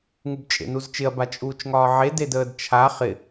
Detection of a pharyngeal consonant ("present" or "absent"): present